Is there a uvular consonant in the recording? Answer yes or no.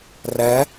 no